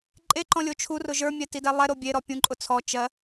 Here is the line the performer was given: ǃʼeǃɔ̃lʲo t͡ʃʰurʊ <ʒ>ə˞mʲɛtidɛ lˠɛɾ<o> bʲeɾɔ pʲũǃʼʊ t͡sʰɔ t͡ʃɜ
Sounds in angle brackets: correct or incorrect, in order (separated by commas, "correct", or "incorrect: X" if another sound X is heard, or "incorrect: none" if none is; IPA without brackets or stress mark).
correct, correct